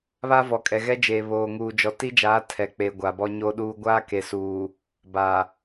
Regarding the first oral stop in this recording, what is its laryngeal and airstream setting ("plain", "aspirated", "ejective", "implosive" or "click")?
ejective